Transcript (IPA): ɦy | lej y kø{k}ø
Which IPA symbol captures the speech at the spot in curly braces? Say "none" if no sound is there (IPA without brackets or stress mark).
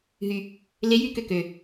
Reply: k